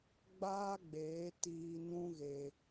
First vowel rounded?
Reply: no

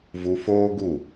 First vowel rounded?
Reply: yes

